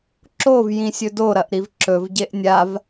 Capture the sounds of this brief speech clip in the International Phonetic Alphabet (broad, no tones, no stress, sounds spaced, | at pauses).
ǁ o v j ĩ sʲ ɵ d o ɾ ɐ ʔ ɾ i v ǁ ɵ v ɟ e ʔ nʲ a v